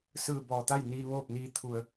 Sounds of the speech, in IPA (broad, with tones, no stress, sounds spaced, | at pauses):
s ɯː˧˩ b ɔː˧˩ t̪ a˥˨ j n iː˧ ʋ oː˥˨ p̚ n iː˧ t̪ʰ u˧˩ ə̯